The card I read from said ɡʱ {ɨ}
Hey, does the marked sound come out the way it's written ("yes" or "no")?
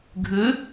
yes